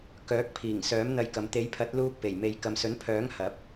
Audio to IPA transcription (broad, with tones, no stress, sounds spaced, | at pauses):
k œː˨˥ k̚ pʰ iː˨˩ ŋ s œː˨˥ m n̪ ɐ˧ j k ɐ˨ m t̪ e˨˥ j pʰ ɐ˨˥ t̚ l uː˧ k̚ p e˨˩ j m e˨ j k ɐ˨ m s ɵ˨˥ n pʰ œː˨˥ ŋ h ɐ˨˥ p̚